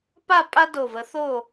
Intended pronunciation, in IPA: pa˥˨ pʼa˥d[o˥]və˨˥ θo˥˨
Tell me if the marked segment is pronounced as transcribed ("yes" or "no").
no